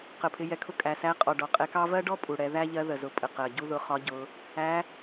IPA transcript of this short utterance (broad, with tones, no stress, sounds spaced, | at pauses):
q ə˩ pʰ ɪ˩˧ j ɛ˩˧ kʰ ʊ˧˥ kʼ æ˩ s æ˧˥ qʼ ɔ˩ ɖ ɔ˩ qʼ ɛ˧ k ɑ˥ v ɜ˥ ɖ ɔ˥ pʼ u˩ ɽ ɛ˩˧ ð æ˥ ʎ ɜ˧˥ ð ə˩ z ʊ˩˧ pʼ ə˩ q ɜ˩ ɟ u˥ ð ʊ˧ χ ɒ˧˥ ɟ ʊ˩˧ | æ˧˥